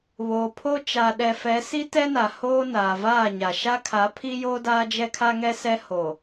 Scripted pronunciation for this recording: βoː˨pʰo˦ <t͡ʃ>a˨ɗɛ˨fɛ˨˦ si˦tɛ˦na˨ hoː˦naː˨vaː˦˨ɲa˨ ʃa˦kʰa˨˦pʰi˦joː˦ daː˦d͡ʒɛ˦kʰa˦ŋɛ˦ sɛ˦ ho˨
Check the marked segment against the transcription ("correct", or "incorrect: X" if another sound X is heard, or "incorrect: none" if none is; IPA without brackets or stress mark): correct